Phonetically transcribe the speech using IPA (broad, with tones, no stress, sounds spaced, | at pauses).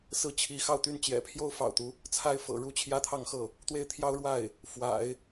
s ɹ̩˥˩ t͡ɕʰ i˧˥ x ɑ˥˩ ʊ̯ t̪ y˥ n t͡ɕ j ɛ̰˨˩ pʰ j o˥ ʊ̯ f ɑ̰˨˩ ʊ̯ t̪ u˦ | t͡sʰ a˥ ɪ̯ f ɤ̰˨˩ ɻ u˥ t͡ɕʰ j ä˥ t̪ʰ ɑ˥˧ ŋ x ɤ˥˩ | t̪ w e˥˩ ɪ̯ t̪ʰ j ɑ˥ ʊ̯ ɻ w a˥˩ ɪ̯ | f w a̰˨˩˦ ɪ̯